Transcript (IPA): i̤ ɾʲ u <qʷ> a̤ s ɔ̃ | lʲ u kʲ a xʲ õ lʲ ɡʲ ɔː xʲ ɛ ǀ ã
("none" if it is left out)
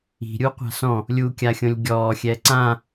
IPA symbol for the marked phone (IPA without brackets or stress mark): qʷ